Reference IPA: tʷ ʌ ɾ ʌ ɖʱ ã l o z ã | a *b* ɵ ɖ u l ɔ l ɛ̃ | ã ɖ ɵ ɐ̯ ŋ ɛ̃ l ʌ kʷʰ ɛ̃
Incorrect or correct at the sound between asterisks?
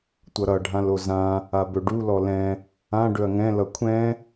correct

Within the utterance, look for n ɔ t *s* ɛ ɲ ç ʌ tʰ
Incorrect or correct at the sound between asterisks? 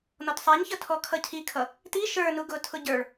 incorrect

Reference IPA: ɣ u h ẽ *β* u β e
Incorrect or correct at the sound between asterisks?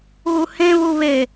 correct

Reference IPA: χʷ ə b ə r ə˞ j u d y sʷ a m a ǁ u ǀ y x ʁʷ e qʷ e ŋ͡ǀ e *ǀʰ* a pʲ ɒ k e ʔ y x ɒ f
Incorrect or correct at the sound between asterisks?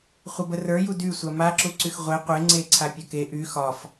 correct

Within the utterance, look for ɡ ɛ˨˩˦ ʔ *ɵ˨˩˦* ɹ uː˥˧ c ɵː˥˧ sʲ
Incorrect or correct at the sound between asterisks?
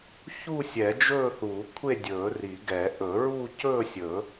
correct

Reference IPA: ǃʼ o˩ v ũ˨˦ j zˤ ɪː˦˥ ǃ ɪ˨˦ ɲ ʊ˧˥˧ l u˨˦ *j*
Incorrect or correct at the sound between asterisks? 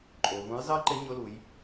correct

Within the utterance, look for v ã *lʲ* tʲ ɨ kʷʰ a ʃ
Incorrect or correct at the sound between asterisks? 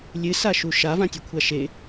incorrect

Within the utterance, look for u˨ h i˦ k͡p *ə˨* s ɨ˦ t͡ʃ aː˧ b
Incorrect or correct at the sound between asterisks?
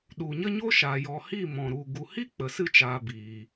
correct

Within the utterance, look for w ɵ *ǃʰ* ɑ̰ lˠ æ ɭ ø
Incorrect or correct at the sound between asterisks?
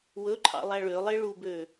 correct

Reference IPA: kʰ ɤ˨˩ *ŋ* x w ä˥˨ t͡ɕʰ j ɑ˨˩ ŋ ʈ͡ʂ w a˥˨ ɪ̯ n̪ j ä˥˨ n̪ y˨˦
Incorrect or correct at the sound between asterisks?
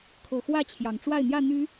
incorrect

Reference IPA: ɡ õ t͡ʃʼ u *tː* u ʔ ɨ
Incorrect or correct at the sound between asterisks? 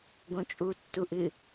correct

